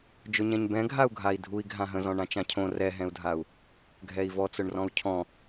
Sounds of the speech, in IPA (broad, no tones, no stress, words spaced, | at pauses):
d͡ʒʊɲɛ̃ɲbɛ̃ ɡʱau̯ɡʱai̯dʱui̯ ɡʱãɦə̃zɔ̃ ɳãt͡ʃãcʰõ rɛɦɛ̃u̯dʱau̯ | ɡʱɛi̯vɔt͡sʊɳrɔ̃u̯ cʰɔ̃